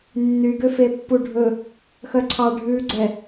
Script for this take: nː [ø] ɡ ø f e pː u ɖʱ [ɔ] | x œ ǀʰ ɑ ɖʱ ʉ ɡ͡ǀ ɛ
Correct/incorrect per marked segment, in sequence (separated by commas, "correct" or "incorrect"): incorrect, incorrect